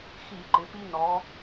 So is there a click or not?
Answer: yes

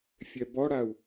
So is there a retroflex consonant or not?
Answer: yes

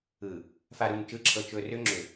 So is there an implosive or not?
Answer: no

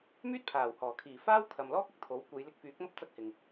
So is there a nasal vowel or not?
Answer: no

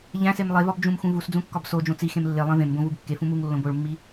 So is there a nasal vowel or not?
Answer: yes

